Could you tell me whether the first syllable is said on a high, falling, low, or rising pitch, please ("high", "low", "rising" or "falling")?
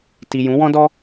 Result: low